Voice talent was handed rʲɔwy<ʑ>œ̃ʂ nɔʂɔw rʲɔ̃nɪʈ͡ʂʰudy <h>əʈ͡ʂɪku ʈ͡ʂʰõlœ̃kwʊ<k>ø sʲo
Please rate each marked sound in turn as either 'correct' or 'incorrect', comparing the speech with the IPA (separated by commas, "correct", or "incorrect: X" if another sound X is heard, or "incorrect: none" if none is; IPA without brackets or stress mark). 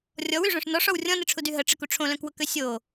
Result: incorrect: ʐ, incorrect: ɦ, correct